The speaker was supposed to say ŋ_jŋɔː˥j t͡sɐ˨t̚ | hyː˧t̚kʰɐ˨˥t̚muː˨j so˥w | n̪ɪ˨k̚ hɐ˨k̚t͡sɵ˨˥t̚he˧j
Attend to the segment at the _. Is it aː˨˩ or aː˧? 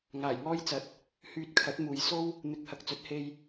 aː˨˩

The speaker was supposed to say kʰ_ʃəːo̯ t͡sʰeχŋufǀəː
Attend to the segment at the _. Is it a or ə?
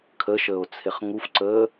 ə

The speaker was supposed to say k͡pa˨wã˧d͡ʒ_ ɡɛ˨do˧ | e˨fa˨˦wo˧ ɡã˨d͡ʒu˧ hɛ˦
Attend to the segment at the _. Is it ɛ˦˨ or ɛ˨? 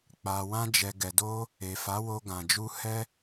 ɛ˨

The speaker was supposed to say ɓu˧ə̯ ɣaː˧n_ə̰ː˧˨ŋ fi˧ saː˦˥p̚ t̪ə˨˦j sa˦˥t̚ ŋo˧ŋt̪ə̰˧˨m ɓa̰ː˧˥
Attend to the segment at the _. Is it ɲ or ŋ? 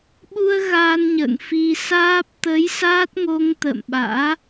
ɲ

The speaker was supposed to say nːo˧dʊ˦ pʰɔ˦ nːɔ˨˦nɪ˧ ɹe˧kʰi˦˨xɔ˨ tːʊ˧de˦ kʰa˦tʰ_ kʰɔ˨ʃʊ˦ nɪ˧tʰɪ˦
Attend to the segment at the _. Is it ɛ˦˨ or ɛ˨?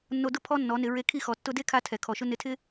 ɛ˨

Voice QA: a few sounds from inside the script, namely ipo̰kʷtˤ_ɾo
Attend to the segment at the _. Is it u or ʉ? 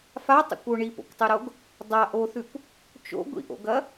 ʉ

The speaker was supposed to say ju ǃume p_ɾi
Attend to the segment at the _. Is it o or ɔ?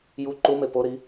o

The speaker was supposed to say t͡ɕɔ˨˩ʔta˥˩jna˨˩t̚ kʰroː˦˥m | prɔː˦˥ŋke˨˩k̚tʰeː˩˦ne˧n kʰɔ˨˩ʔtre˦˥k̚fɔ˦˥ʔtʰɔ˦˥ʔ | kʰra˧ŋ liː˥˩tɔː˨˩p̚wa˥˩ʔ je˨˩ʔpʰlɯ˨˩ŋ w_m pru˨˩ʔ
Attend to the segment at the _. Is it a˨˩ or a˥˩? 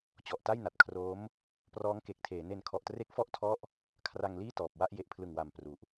a˨˩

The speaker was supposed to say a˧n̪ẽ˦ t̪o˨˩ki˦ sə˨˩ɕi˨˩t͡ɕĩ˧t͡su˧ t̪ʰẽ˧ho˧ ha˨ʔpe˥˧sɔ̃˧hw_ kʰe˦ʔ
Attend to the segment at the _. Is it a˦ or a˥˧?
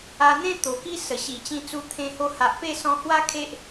a˦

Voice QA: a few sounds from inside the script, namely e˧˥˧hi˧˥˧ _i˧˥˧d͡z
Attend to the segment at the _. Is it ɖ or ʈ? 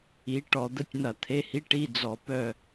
ʈ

